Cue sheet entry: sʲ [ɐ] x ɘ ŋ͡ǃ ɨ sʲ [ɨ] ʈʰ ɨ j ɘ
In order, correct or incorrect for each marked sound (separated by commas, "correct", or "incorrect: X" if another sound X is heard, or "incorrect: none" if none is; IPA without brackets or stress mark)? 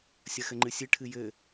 correct, correct